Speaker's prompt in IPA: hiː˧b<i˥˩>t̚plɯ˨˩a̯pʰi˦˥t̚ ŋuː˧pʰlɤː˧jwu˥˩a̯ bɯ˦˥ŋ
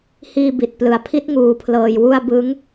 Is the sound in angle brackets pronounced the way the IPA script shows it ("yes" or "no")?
no